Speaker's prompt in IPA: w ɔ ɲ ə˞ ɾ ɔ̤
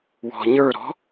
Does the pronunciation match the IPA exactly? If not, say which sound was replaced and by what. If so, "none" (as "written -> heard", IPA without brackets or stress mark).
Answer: ɔ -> ɔ̤